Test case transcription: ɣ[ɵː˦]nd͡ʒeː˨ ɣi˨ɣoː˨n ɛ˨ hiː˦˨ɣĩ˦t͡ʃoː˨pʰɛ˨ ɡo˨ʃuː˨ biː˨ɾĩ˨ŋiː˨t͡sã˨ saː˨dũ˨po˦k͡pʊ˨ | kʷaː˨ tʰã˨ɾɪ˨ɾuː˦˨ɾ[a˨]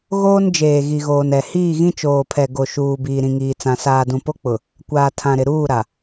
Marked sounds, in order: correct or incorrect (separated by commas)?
incorrect, correct